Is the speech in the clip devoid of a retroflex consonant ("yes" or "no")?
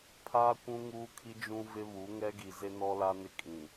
yes